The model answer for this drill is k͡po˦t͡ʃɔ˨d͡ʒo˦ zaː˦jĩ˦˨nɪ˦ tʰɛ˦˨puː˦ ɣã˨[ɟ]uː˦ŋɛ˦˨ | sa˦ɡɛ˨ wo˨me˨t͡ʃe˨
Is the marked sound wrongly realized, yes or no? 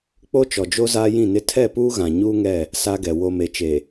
yes